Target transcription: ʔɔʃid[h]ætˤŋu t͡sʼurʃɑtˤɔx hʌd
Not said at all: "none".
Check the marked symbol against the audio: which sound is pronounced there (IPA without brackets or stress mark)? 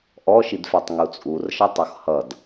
f